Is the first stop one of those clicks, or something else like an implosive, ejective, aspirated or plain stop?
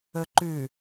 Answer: click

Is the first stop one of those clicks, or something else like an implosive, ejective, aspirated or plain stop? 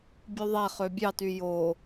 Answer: plain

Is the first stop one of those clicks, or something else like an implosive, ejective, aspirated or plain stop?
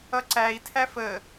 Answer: click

